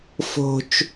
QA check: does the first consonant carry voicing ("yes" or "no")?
no